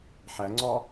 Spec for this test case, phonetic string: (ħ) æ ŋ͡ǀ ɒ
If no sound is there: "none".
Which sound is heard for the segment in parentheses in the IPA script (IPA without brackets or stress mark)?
ħ